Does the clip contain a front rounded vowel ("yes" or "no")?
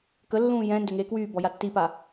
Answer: yes